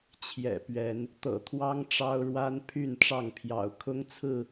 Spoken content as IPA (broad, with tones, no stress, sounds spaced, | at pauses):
t͡ɕʰ j ɛ̰˨˩ p ɥ ɛ˨˦ n | t̪ ɤ̰˨˩ t̪ʰ w ɑ˦ ŋ ʈ͡ʂ ɑ˦ ʊ̯ ɻ w a˦ n pʰ y˥˨ n ʈ͡ʂ ɑ˥˨ ŋ pʰ j ɑ̰˨˩ ʊ̯ kʰ ʊ˦ ŋ t͡sʰ ɹ̩˥˨